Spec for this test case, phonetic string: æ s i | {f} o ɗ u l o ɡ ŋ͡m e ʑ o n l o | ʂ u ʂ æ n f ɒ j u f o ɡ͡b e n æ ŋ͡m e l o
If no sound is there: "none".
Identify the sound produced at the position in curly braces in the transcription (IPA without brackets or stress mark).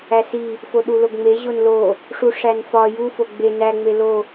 f